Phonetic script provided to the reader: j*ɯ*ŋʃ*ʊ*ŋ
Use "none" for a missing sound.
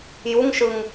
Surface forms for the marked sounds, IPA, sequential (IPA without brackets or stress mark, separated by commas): u, ɯ